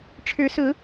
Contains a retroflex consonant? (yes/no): yes